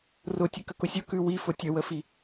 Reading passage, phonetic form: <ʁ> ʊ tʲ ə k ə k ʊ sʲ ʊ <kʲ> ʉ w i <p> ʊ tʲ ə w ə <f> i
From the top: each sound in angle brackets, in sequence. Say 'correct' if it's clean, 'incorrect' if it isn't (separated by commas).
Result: incorrect, incorrect, incorrect, correct